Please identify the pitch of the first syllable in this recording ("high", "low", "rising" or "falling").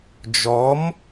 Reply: rising